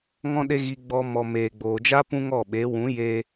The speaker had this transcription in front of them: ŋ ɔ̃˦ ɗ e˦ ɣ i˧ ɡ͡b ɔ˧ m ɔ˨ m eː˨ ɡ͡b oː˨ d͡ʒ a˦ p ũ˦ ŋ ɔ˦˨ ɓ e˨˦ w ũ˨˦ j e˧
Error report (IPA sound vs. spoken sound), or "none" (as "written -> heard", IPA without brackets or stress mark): none